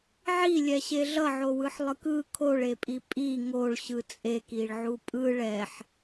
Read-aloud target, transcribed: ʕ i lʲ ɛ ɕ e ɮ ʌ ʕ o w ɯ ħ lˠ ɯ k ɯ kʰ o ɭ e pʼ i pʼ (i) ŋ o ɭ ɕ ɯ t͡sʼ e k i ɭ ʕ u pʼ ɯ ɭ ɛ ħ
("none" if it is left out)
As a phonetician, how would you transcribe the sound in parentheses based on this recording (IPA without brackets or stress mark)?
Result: i